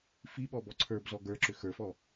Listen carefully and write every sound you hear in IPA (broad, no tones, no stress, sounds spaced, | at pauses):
f i ɓ ɔ b ɔ ǀʰ ə˞ b z ɔ ɡ ə˞ ǁ ʏ x ə˞ f ɔ